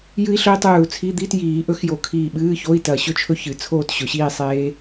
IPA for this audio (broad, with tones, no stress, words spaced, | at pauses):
jɨ˦˥i̯ɬɵ˦˥i̯ tˤʉː˧˩u̯t͡sʰi˧˥˧ d̪i˧˥˧tjiː˨˩˦ ʔɵ˦˥xjo˧˩ kʰiː˧˩ɓɨː˧˥˧ ço˧˥˧i̯tɐ˧˩ɕɵ˥˧t͡ʃʰɵ˦˥ çɨ˨˩˦t͡sʰoː˥˧tɕɵ˨˩˦ɕiː˥˧ sˤeː˦˥